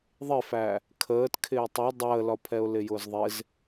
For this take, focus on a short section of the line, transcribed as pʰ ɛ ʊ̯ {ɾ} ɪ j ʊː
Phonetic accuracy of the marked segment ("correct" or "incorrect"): incorrect